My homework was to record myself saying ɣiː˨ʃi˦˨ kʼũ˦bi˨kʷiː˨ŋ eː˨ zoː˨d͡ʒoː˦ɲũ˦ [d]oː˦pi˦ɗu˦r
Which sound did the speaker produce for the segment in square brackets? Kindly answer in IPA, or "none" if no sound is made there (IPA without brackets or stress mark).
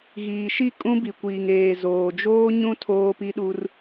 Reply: tʰ